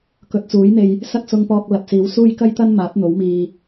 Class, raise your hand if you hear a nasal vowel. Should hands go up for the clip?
no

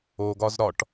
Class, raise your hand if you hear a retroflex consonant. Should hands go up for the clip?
yes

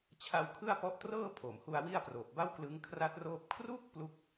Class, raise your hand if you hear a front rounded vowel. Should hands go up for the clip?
no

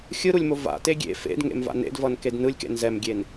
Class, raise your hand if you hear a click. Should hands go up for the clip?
no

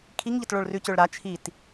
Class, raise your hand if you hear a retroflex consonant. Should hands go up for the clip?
yes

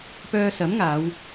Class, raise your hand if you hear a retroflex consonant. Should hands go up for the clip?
no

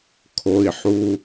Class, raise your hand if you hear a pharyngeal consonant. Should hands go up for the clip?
yes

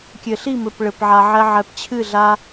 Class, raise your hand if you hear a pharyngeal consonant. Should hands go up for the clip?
yes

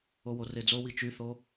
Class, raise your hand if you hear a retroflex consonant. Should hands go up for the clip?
no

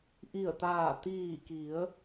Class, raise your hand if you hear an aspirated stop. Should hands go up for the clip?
no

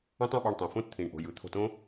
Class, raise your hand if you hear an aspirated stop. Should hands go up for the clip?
yes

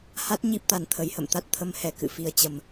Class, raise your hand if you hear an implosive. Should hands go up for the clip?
no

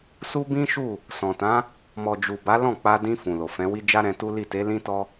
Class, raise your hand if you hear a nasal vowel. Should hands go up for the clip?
yes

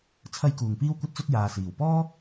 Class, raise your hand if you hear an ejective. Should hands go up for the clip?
no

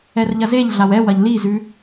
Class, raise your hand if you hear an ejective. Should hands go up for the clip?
no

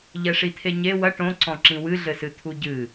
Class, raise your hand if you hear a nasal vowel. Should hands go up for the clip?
yes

